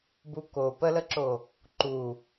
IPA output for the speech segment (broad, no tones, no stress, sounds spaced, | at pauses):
b u k o p ə l ə ǁ o | ǃ u